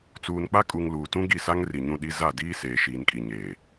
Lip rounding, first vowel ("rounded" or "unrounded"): rounded